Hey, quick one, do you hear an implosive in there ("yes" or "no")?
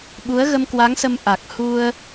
yes